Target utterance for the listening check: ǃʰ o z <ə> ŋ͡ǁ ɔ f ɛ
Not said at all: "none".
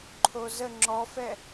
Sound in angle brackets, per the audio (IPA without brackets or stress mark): ə